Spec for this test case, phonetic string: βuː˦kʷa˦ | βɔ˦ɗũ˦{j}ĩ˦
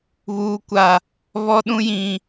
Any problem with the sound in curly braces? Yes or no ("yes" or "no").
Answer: no